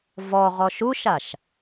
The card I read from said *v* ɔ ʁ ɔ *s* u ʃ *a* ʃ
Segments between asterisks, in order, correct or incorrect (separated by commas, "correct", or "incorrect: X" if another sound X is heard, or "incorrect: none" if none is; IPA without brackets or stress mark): correct, incorrect: ʃ, correct